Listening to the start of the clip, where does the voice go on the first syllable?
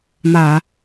low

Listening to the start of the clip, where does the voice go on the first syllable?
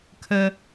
high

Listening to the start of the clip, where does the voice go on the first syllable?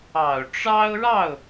low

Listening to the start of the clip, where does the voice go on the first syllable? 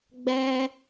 high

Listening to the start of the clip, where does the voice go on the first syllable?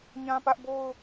high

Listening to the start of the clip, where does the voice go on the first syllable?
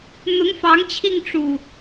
rising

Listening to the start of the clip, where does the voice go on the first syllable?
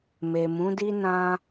low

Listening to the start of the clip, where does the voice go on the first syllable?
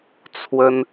high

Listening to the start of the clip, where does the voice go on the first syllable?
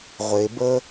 low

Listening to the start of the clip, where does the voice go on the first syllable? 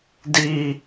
low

